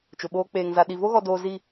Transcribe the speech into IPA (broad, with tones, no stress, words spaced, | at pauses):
t͡ʃʊ˨ɓoː˦ k͡peː˨ŋza˨ ɗi˨ vo˦ɣɔ˨doː˨ zi˦˨